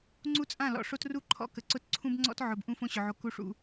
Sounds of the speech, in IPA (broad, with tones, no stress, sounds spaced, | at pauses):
ŋ͡ǀ u˦ t͡sʼ ã˦˨ l ɔ̰˨ ʂ o˦ t r u˦ ǃʰ ɔ̰˦˨ k ə˨ ǀ ʊ˦ t ǀʰ ũ˦ b ŋ͡ǀ ɔ̰˦ t ʕ ʊ˨ b ʔ ũ˦ f õ˦ ɕ ʊ˨ ʕ o˨ k u˨ ʂ ṵ˨